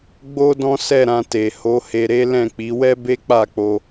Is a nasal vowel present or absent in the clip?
present